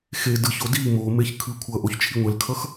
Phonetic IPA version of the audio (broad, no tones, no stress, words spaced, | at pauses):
xe dɯço di momeç kʰɯkʷʰʌʔoç t͡ʃʰiŋʷɛlkʰʌx